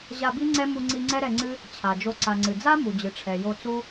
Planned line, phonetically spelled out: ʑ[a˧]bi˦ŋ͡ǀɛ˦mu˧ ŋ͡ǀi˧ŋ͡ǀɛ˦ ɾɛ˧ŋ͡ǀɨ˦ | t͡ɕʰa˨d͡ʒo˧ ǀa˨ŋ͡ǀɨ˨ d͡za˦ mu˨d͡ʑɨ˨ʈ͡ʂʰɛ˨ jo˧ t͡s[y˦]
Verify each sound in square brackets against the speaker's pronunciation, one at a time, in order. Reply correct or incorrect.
correct, incorrect

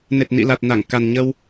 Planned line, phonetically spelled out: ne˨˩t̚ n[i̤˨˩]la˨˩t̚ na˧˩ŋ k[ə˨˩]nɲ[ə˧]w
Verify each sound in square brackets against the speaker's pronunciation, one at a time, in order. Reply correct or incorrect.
incorrect, incorrect, correct

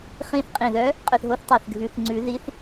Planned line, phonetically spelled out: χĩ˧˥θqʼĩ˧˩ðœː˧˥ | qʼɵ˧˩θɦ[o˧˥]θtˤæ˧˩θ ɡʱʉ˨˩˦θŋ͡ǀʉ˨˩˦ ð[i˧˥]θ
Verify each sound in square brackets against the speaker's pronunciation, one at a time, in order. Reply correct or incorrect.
correct, correct

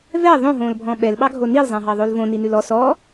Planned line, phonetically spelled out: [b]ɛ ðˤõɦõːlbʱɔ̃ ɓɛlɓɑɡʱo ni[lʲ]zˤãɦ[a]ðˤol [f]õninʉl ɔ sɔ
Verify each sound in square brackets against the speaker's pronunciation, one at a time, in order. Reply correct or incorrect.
incorrect, incorrect, incorrect, incorrect

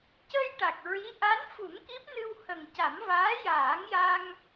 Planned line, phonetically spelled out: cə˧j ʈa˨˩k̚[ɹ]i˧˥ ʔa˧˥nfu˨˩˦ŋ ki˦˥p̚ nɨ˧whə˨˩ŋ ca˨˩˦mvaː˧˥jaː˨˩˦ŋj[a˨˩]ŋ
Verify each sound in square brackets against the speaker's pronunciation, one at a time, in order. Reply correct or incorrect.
correct, incorrect

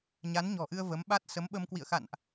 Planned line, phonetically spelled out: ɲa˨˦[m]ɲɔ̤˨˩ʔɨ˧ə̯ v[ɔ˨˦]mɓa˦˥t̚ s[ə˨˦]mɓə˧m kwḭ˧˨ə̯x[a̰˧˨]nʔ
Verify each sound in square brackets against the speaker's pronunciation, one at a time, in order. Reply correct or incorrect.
incorrect, incorrect, correct, correct

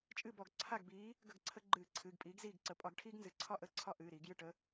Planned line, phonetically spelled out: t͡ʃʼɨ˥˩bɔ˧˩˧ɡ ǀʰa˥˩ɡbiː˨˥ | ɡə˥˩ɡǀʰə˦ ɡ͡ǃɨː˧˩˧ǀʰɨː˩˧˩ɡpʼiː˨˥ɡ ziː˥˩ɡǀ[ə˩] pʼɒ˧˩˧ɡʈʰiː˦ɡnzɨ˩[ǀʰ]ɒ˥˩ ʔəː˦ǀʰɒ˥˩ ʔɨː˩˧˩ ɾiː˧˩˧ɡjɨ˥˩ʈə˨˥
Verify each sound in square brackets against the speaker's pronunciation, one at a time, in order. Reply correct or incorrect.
incorrect, correct

